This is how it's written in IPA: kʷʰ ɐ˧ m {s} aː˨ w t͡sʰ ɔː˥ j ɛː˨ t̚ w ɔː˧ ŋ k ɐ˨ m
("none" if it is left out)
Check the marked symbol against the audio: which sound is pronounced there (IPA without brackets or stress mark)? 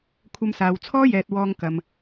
s